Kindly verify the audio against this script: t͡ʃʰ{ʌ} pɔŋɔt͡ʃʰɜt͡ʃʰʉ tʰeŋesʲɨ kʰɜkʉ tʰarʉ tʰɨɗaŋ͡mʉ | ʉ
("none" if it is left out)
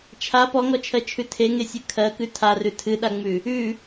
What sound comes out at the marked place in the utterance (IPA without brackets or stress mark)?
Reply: a